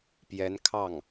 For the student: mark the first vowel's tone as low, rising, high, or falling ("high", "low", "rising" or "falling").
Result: rising